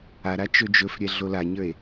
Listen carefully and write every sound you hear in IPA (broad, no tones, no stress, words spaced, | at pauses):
aɾa t͡ʃɵd͡ʒɵfɾʲɛ ɮolaɲə˞e̯